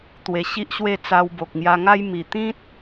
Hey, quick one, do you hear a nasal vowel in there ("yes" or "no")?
yes